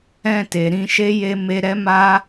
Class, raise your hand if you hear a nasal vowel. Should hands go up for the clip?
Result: yes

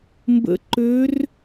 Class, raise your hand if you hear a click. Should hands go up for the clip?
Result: yes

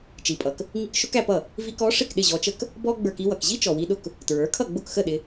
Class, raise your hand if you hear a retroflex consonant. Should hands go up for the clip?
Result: yes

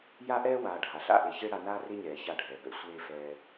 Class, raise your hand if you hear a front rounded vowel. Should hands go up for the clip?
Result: no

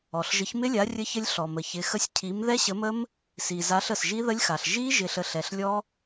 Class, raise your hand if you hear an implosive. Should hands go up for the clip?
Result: no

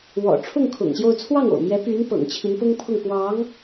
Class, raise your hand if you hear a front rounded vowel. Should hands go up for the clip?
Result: yes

